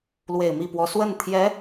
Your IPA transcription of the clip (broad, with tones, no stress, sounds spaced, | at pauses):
l w e˨˩ ɪ̯ m i˥˩ p w ɔ˧˥ s w ə˥˩ n t̪ʰ j ɛ˧˥